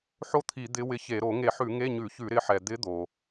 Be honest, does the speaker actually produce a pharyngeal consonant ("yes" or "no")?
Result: yes